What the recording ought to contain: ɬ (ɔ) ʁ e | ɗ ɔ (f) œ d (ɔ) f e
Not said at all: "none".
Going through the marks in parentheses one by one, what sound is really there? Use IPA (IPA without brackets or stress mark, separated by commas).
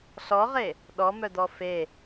ɔ, m, ɔ